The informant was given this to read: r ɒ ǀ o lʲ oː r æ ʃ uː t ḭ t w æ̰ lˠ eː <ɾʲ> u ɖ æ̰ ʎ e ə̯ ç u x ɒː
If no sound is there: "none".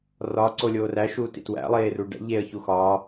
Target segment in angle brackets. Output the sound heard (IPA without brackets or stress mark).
r